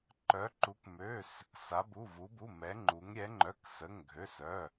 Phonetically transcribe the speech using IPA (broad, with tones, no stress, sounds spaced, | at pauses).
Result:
ǃ œ˧˥ ǃ u˧˥ k m ø˧˥˧ s | s a˧˥ b u˧˥˧ v u˧˥ b u˧˥˧ m ɛ˧˥ ŋ͡ǃ u˧˥ ŋ ɾʲ ɛ˧˥ ŋ͡ǃ œ˧˥˧ k s ə˧˥˧ ŋ ɡʱ ø˧˥˧ s œ˧˥˧